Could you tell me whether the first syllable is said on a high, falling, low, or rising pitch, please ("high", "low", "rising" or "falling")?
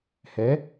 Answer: rising